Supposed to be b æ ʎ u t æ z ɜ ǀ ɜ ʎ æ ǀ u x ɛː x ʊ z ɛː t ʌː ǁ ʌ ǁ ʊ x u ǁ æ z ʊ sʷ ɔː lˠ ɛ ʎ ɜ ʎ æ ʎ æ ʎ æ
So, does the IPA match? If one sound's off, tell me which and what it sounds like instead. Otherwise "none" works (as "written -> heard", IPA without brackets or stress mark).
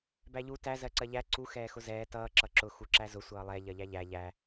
ɔː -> ʌː